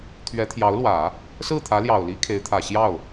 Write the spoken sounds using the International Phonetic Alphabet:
t̪ʰɥɛ˧˥t̪ʰjɑ˧˥ʊ̯lwä˨˩˦ | sɹ̩˥˩t̪ʰä˧˥ljɑ˨˩ʊ̯li˧˥ kʰe˧˥ɪ̯t̪ʰä˨˩ ɕjɑ˥˩ʊ̯

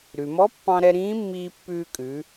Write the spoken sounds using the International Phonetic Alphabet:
ɾʉ˩mɔ˧˥pːɑ̃˧ɾɛ˧ ɾĩː˧˥mːiː˧pːʉː˧kʼʉ˩˧

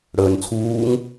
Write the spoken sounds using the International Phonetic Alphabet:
ɽəːnt͡sʰuːŋ

